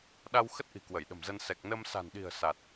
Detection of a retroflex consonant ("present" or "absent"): absent